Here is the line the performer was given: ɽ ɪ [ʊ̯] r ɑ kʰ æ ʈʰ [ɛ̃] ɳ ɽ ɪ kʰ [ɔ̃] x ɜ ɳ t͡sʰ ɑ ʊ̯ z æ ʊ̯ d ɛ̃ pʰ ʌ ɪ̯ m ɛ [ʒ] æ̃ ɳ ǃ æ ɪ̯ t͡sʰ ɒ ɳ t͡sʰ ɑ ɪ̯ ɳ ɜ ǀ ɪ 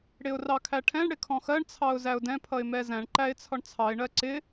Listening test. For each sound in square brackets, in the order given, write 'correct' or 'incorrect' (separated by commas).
correct, correct, correct, incorrect